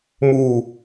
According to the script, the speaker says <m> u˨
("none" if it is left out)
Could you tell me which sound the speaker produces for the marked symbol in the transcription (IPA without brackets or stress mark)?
m